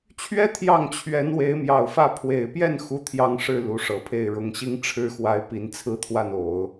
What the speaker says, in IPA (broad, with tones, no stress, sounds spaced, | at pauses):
t͡ɕʰ ɥ ɛ˥ t̪ʰ j ɑ˥˩ ŋ t͡ɕʰ ɥ ɛ˧˥ n w e˧˥ ɪ̯ m j ɑ˨˩ ʊ̯ f ä˥˩ pʰ w e˨˩ ɪ̯ p j ɛ˥˩ n x u˥ t̪ʰ j ɑ˥˧ ŋ ʂ ɻ̩˥˩ l u˧˥ ʂ ɤ˨˩ pʰ e˥˩ ɪ̯ ɻ ʊ˨˩ ŋ ɕ i˥ ŋ ʈ͡ʂʰ ɻ̩˥ x w a˧˥ ɪ̯ p i˧˥ n t͡sʰ ɹ̩˥ t̪ʰ w a˥˩ n o˨˩˦ ʊ̯